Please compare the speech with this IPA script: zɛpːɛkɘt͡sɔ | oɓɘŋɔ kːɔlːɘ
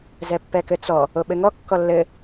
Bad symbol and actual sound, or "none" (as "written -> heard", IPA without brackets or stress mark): none